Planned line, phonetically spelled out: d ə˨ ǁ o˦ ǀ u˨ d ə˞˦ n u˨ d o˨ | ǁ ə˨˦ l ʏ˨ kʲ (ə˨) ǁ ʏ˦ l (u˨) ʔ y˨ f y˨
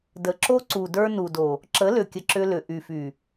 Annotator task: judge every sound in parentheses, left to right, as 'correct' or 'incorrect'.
correct, incorrect: ʏ˨

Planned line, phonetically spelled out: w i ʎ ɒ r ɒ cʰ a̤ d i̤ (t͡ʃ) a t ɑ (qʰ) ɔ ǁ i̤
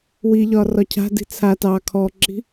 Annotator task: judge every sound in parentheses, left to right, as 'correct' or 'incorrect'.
incorrect: t͡sʰ, incorrect: kʰ

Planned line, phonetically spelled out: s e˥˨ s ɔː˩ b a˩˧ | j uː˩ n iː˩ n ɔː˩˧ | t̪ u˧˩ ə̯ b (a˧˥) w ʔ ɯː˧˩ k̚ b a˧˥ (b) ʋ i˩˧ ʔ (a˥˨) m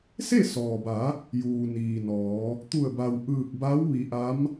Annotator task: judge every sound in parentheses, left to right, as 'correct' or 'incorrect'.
incorrect: a˩, incorrect: w, incorrect: a˧˥

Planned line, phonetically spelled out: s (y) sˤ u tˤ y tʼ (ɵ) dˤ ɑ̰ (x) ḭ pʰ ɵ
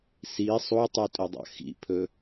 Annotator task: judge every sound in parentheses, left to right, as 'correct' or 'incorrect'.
incorrect: i, correct, correct

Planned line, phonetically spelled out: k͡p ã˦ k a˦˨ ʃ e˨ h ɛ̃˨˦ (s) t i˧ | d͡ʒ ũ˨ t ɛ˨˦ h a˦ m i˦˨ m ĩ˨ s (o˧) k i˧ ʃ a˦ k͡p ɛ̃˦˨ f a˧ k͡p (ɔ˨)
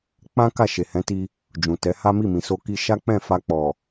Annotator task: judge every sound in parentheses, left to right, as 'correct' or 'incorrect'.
incorrect: none, correct, correct

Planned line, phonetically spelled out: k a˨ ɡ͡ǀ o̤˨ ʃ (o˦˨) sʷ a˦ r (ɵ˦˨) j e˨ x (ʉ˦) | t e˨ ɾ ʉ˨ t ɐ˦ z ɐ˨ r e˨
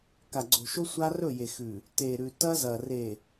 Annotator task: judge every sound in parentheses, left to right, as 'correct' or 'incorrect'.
incorrect: o˦, correct, incorrect: ʉ˨

